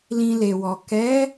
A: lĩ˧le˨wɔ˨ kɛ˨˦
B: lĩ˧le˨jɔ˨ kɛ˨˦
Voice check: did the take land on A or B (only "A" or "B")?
A